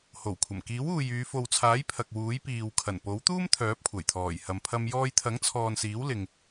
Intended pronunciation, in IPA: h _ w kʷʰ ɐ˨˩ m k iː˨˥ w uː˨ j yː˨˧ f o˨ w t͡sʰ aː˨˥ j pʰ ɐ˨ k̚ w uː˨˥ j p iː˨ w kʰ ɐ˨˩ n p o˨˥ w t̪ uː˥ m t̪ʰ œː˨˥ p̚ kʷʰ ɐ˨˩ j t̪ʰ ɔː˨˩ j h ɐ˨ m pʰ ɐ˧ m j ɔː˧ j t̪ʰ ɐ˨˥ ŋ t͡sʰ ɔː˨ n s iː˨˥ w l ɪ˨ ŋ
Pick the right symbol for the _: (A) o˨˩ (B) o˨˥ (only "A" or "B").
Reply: A